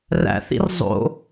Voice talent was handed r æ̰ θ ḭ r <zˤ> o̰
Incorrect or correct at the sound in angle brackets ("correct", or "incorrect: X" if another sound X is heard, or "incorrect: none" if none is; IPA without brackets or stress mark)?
correct